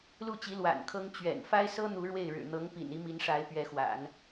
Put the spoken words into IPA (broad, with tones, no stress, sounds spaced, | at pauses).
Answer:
l u˥˩ t͡ɕ i˧˥ l w a̰˨˩ n kʰ ɤ˥ ŋ t͡ɕ ɥ ɛ̰˨˩ n f a˥ ɪ̯ s ɤ˥ n̪ u˧˥ ɻ w e˥˩ ɪ̯ ɻ ɻ̩˨˩ n̪ ɤ˧˥ ŋ p ḭ˨˩ n i˧˥ m i˧˥ n ʂ a˧˥ ɪ̯ p ɥ ɛ˧˥ x w a̰˨˩˦ n